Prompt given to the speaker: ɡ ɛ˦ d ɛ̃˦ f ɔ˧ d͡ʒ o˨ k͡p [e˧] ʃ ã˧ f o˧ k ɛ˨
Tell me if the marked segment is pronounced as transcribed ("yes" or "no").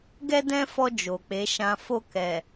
no